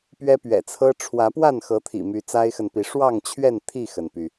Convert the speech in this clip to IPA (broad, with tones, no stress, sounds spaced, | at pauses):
p ɥ ɛ˦ p ɥ ɛ̰˨˩ t͡sʰ ɤ˦ ʈ͡ʂʰ w ä˨˦ p w a˥˨ n x ɤ˨˦ t̪ʰ ḭ˨˩ m y˨˦ t͡s a˦ ɪ̯ x ə˨ n p i˨˦ ʂ w ɑ˥˨ ŋ t͡ɕʰ ɥ ɛ˥˨ n t̪ʰ i˥˨ x ə˩ n p y˩